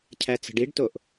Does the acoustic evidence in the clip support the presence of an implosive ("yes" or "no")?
no